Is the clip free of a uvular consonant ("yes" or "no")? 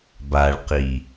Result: no